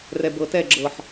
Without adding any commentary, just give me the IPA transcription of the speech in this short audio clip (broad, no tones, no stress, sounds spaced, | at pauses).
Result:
r ɛ b ɤ t ɛ ɡ͡ǁ ɤ ħ